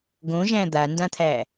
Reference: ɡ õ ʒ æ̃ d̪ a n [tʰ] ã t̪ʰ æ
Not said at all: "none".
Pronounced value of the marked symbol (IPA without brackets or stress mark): d